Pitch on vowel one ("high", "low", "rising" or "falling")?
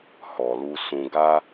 low